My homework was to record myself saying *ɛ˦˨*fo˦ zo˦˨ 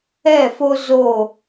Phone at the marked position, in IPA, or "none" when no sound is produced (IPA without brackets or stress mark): ɛ˦˨